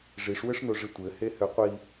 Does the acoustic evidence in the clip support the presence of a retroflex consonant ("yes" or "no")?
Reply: yes